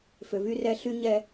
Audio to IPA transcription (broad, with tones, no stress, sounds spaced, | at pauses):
f ø˨ v y˦ r ɛ˦ ɬ y˦ ɲ ɛ˦